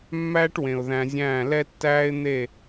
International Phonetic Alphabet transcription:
mː æː˦ ʈ w ẽ˨ ʊ̯ ð æ̃˧ zʲ æ̃ː˦˨ l ɛ˦ tː æː˦ ɪ̯ n̪ e˦˨

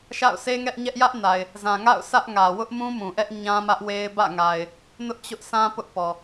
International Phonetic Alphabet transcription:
ʃ a̰˦˨ ʊ̯ sʰ e˦ ŋ ɛ˦ ʔ ɲ ɛ˦ ʔ j ä˦ ʔ n a˨ ɪ̯ | z ã˨ ŋ a̰˦˨ ʊ̯ s ä˦ ʔ ŋ ä˨ w ʊ˦ ʔ m ũ˦ m ũ˨ ʔ ɛ˦ ʔ ɲ ã˦ m ä˦ ʔ w e˦ ɪ̯ b ä̰˦˨ ŋ a˨ ɪ̯ | n ʊ˦ ʔ t͡ɕ ʊ˦ ʔ sʰ ã˦ p ʊ˦ ʔ p ɔ˨

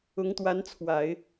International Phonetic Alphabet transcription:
ʊ˧˥ ŋ t̪ w a˧˥ n t͡sʰ w a˨˩˦ ɪ̯

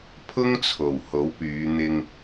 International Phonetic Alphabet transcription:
pʰ ʊ˥ ŋ t͡sʰ o˨˩ w h o˨˥ w p yː˨˧ n̪ ɪ˧ ŋ

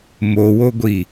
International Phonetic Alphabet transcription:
m o w o ɡʷ i

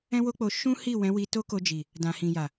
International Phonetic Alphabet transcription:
ɛ̃˦ w o˦ k͡p o˧ ʃ ũ˦ h i˦˨ w ɛ̃˨˦ w i˧ t o˦ k o˧ d͡ʒ i˨ | d ã˨ h ĩ˨ j a˨

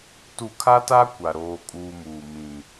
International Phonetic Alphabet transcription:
t u˨ kʰ a˦ t a˦ kʷ a˨ ɾ oː˦ kʼ uː˦ m uː˨ m ĩ˨

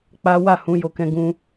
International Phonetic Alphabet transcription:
k͡p a˦ w a˦˨ h ũ˨˦ j o˧ k ɛ̃˧ ɡ ũ˧

